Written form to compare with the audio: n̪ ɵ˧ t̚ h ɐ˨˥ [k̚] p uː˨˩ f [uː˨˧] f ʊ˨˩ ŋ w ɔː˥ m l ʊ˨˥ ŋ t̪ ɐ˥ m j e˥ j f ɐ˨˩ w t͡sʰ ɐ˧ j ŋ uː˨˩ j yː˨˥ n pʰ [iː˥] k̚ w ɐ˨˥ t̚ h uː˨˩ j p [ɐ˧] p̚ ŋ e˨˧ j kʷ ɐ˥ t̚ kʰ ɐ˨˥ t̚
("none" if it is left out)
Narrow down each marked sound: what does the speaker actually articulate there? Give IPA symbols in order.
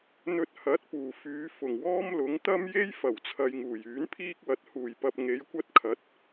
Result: t̚, yː˨˧, iː˥, ɐ˧

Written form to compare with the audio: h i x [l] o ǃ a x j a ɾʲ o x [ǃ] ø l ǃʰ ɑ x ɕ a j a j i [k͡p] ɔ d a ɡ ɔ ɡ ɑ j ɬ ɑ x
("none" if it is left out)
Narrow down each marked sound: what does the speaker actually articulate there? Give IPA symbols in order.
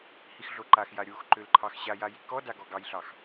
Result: ɮ, ǃ, k

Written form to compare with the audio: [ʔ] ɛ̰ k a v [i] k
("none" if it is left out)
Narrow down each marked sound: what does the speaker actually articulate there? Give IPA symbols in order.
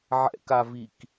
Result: ʕ, i

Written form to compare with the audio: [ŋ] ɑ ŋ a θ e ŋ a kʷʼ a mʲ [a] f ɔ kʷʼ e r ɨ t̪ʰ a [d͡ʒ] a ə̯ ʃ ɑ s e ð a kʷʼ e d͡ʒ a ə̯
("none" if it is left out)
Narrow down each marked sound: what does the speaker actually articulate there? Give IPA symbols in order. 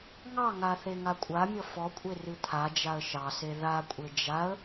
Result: ŋ, ʌ, d͡ʒ

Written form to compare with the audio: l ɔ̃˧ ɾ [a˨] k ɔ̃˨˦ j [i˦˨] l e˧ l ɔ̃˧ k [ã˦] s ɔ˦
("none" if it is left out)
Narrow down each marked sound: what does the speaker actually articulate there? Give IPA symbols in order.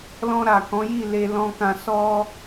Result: a˨, i˦˨, ã˧

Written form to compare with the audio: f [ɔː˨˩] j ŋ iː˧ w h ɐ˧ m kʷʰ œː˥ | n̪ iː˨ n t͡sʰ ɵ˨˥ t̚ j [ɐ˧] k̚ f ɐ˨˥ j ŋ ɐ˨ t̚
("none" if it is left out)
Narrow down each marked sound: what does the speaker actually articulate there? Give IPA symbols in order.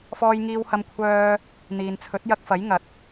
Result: ɔː˧, ɐ˧

